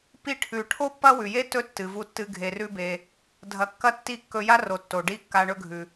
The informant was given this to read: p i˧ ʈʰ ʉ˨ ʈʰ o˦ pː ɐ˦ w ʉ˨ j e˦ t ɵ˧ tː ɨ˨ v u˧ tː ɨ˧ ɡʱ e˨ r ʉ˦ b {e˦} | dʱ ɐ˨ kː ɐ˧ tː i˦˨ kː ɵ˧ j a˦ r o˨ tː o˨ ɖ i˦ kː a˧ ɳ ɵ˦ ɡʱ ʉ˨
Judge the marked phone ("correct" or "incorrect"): incorrect